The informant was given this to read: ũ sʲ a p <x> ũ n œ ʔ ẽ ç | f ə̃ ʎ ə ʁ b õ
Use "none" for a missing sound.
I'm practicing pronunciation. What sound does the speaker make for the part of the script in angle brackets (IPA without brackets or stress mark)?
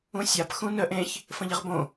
x